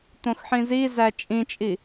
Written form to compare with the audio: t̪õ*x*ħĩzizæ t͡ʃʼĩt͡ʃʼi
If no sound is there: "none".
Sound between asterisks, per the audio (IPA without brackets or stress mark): x